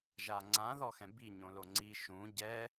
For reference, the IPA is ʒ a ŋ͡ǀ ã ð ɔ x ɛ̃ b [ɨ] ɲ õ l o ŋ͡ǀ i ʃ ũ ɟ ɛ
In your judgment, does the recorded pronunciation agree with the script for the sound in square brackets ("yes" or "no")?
no